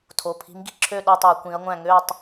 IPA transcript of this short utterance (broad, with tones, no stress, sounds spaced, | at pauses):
tʰ o˩˧˩ pʰ i̤˨˦ m ɡ i̤˦˨ ǁʰ ø˦˨ ɗ o˦˨ tˤ o˧˩˧ kʷ ĩ˨˦ ɐ̯ ŋʷ æ̃˦˨ ŋ ø˦˨ tˤ